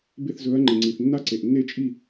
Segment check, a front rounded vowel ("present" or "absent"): absent